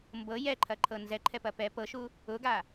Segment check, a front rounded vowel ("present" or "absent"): absent